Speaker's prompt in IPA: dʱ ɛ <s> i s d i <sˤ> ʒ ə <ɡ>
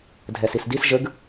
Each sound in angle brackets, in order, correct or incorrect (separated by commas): correct, incorrect, correct